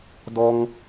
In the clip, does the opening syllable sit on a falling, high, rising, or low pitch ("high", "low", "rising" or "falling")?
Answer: high